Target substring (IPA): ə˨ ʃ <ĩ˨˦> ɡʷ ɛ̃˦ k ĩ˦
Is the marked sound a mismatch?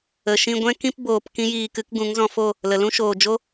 yes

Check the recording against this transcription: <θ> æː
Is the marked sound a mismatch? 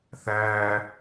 no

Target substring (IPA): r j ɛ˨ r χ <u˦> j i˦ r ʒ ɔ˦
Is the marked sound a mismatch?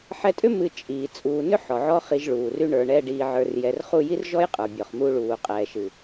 yes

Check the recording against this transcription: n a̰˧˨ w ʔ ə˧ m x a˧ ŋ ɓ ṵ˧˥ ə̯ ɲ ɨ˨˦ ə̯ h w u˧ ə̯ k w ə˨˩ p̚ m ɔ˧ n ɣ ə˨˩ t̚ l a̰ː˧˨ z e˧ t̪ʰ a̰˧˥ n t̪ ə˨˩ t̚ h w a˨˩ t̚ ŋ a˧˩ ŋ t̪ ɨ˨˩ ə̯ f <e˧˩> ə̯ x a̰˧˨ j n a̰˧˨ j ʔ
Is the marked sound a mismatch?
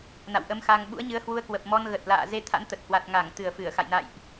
yes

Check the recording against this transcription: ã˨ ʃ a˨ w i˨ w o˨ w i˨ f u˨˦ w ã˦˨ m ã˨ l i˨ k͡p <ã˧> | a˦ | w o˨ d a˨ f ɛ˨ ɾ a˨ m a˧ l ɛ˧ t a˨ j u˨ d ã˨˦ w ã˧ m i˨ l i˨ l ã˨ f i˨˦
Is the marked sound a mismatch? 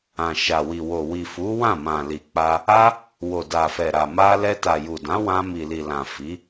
yes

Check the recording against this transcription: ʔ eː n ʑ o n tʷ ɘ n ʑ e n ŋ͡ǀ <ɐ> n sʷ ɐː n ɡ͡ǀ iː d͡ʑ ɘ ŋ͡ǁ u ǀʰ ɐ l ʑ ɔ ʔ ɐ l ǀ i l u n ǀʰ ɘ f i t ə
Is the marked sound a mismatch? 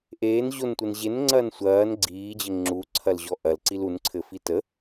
yes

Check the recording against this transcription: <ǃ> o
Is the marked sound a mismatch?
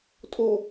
yes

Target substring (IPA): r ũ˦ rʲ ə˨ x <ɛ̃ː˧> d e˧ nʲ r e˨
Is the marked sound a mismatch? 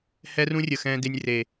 no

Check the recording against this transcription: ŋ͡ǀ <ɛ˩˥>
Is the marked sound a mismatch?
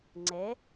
no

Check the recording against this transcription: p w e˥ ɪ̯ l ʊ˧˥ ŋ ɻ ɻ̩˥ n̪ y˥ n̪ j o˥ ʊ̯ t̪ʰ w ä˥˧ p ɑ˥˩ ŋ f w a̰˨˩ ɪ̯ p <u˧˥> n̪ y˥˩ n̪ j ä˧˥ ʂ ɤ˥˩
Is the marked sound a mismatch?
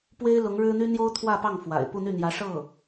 yes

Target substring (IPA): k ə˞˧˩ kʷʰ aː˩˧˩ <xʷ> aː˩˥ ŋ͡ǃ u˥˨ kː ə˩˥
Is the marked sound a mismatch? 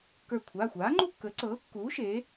no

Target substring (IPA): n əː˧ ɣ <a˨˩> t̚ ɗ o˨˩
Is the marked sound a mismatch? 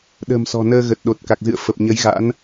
yes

